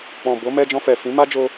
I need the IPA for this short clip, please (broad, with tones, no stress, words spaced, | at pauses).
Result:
k͡pɔ̃˨ bo˨˦mɛ˧ d͡ʒɔ̃˧fɛ˨ fĩ˨˦ma˦d͡ʒo˧